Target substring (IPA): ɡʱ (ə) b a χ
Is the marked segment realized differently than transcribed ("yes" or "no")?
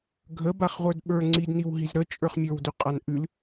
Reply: no